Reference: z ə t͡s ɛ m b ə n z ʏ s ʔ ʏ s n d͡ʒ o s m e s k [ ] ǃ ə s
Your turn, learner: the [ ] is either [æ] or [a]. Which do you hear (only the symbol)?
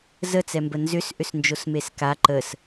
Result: a